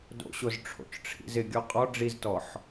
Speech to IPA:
d o̰ ɕ o z ʈ͡ʂʰ o̰ t͡ʃ ʈ͡ʂʰ ḭ z ɪ ɡʲ ɔ qʼ ɔ ɖ͡ʐ i z t ɔ ħ

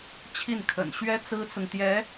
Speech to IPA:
t͡ɕʰ i˥˩ n kʰ ə̰˨˩ n ɕ ɥ ɛ˥ t͡s ɹ̩˥ t͡s ʊ˨ ŋ t̪ j ɛ˧˥

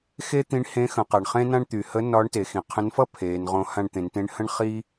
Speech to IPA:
x e˥ t̪ ĩ˧˥ ɳ h ẽ˧˥ x ə̃˩˧ q a˩ ɳ χ ẽ˥ n ã˥ ɳ t̪ y˩ h ə˧˥ n ɒ˧˥ ɳ t e˩˧ x ĩ˩ qʰ ə̃˧˥ n f ʌ˥ pʰ eː˩˧ n ʁ õ˧˥ h ã˧ ɳ t̪ ẽ˩˧ n t ẽ˧˥ ɳ h ə̃˥ ɳ χ i˥

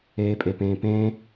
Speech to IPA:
eː pʼ e p ẽː p ẽ

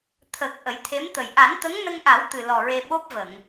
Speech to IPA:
t̪ʰ ə˨˩ k̚ ʔ ə˨˩˦ j t̪ʰ e˧˥ m t̪ ə˨˩ j ʔ a˨˩˦ n t̪ ə˧˥ ŋ n ə˧ ŋ ʔ a˨˩˦ w t̪ ɨ˨˩ l ɔ˨˩ ɹ e˧ ɓ o˦˥ p̚ v ə˨˩˨ ŋ

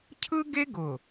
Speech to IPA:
cʰ ɯ˦ ɡ e˦ ɡ ʊ˨

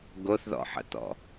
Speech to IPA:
ɡ o θ ð ɔ̰ ħ ə̰ t̪ ɔ̰

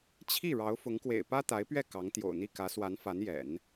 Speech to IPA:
t͡ɕʰ i˥˩ ɻ ɑ˧˥ ʊ̯ f ʊ˧˥ ŋ k w ḛ˨˩ ɪ̯ p ä˥ t̪ a˧˥ ɪ̯ p ɥ ɛ˥˩ k ɑ˧˥ ŋ t̪ j o̰˨˩ ʊ̯ n̪ i˥˩ k ä˧˥ s w a˧˥ n f a˧˥ n j ɛ̰˨˩˦ n

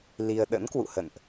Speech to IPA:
l i˧ ə̯ ɗ ə̰˧˥ n k w ṵ˧˨ h ə̰˧˨ n ʔ

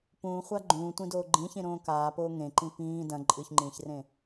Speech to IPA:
p ũː χʷ a ɡ͡ǃ ũː tʷ ĩ d oː ɡ͡ǃ ĩ ç ĩ ɾ õː k aː p oː ŋ ẽ ǃ ĩ p ĩː d ɐ̃ ǃʼ ɨ ç ŋ͡ǃ ĩː ç r ẽ

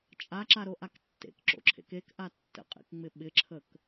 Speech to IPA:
t͡ʃʼ a ǁ a ɾ o ʔ a k tː ḛ k ǁ o̰ ǁʰ ḛ k e k ʔ a tː ə̰ qʼ ḛ k ŋ͡m ɪ ɓ ɪ ǁʰ ə k

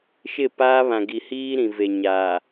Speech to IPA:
ʃ ɪ˦˨ p aː˦ β ã˨ ɡ i˨ h iː˦ ɾ ĩ˨ v e˨ ɲ a˨

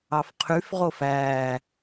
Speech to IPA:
ɑ f qʰ y f ʁ o f æ

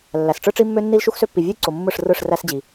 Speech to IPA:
lː æ˨ s ʈ͡ʂ ɯ˦ ʈ͡ʂ i˦ mː ø˦ nː i˦ l ʃ u˦ x s ø˦ pː i˨ vʲ ɯ˦ j ǀ o˨ mː ɯ˦˨ ʂ r ɯ˦˨ ʂ r æ˦ s d͡ʑ i˨

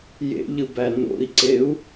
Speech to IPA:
j ḛ ʎ ɯ b æ n o̰ i̯ ǀ e u̯

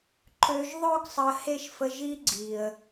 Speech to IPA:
ǃ ø˨ ʒ ðˤ ø˧ ɡ sˤ ə˨ h e˧ ʃ f ə˧ ʒ i˦ ɡ͡ǀ i˨ ə̯

